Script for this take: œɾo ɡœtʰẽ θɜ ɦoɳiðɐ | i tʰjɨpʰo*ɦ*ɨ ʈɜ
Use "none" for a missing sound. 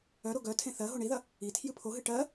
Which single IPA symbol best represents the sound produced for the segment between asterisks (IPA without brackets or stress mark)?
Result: ɦ